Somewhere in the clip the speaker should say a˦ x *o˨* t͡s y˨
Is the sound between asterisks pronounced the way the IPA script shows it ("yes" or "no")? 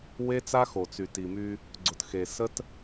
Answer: yes